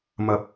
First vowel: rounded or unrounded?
unrounded